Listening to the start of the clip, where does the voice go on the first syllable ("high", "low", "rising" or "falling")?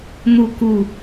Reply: falling